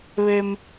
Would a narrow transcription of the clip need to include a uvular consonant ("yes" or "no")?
no